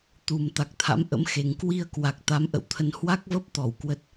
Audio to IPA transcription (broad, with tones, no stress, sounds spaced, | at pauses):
t̪ u˨˩ m t̪ a˨˩ k̚ t̪ʰ a̰˧˥ m ʔ ə̰˧˥ m x e˨˩ ŋ k w i˧ ə̯ k w a˨˩ k̚ t̪ a˨˦ m ʔ ə̰˧˨ w t̪ʰ ə˧ n h w a˦˥ k̚ v ə˦˥ p̚ t̪ ɔ˧˩ w k w ə˨˩ t̚